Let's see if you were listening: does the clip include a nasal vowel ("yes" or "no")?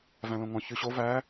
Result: yes